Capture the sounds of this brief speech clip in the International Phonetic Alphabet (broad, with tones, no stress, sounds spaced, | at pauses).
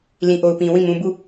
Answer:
l ĩ˨ ʔ o˨ ʊ̯ p ĩ˨ w ĩ˦˨ m ũ˨ b u˦˨